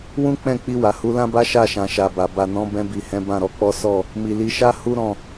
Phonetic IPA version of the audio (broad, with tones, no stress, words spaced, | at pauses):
wũ˦k͡pɛ̃˦˨k͡pi˧ wa˨hu˨˦lã˦ba˦ ʃa˦˨ʃã˨ ʃa˨ba˨ ba˨nɔ̃˨˦ bɛ̃˧bi˨ hɛ̃˨˦bã˦˨ɾɔ˨˦k͡pɔ˦ sɔ˦˨ | mi˨li˨˦ʃa˦ hu˦ɾɔ̃˦˨